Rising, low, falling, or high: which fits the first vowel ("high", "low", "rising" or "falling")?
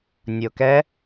low